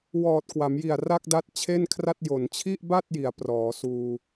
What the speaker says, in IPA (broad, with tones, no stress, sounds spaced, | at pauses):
w ɔː˨˩ t̚ k w a˩˦ m j i˨˩ a̯ r a˥˩ k̚ d a˦˥ t̚ t͡ɕʰ e˥˩ n kʰ r a˥˩ t̚ j o˩˦ n t͡ɕʰ i˥˩ ʔ b a˥˩ t̚ j i˩˦ a̯ p r ɔː˩˦ s uː˧